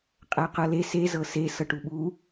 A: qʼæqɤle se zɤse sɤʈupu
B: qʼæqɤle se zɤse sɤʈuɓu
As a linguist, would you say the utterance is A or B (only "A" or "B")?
B